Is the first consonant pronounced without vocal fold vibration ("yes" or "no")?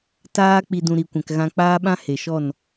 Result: yes